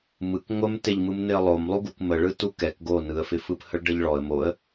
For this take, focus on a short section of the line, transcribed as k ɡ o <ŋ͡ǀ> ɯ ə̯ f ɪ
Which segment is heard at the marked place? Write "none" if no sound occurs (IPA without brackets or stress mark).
n